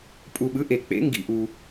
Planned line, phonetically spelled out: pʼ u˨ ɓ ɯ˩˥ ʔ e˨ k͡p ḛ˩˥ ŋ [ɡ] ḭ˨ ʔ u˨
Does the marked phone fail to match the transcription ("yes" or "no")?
no